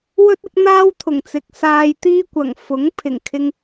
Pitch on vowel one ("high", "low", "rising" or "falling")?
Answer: high